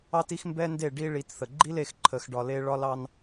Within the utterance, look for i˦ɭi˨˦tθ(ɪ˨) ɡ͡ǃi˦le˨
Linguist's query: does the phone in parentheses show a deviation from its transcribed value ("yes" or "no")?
yes